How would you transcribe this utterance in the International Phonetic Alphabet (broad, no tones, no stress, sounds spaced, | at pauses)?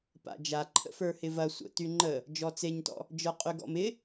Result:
p a̰ d͡ʒ a ǃʰ ə̰ f ə˞ h ɪ v ɐ sʷ ə̰ t y ŋ͡ǃ ə | d͡ʒ ɔ t͡s e ɲ t ɔ̰ | d͡ʒ ə˞ qʼ y ɡ ɔ̰ m ɪ